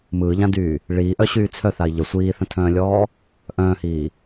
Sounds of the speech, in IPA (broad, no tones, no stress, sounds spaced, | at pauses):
m ɯː ʎ ã d yː | ɭ iː ʔ œ ɕ yː t͡sʰ œ θ a i̯ ʎ ə sʷ iː θ ə̃ tʰ œ̃ː lʲ ɔː | ʔ œ̃ː h iː